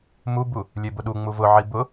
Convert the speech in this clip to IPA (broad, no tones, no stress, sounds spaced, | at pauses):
m u b u | lʲ e b ʊ ɗ u ŋ͡m u v ʊ ʕ i b ʊ